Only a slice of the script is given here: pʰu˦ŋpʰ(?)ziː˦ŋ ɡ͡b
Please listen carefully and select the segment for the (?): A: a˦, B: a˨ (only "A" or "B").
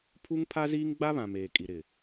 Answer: A